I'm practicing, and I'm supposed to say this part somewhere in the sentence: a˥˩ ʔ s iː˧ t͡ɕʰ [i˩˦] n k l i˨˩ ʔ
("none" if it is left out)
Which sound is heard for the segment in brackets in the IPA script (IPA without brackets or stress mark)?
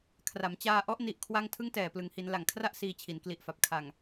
i˩˦